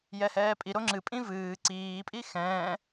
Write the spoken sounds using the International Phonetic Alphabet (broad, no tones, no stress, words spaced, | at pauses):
jɛhɛːpʼi ɾoŋ͡ǁɨpʼĩ vɨː ǀiːpʼi xɛ̃ː